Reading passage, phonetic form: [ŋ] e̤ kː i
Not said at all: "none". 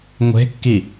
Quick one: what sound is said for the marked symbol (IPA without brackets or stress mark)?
ŋʷ